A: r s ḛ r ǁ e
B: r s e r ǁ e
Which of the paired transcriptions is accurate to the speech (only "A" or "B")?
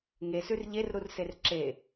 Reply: B